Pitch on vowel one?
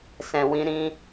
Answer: low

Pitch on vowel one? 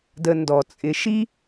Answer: low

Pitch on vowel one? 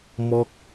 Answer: high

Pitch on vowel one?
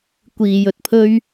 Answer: low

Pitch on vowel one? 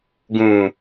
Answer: low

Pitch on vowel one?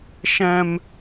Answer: high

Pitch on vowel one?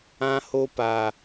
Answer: high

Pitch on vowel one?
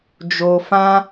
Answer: low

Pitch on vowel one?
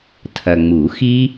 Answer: low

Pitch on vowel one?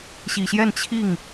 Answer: low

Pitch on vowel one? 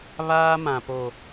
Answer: high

